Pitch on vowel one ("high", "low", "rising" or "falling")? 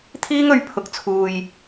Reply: high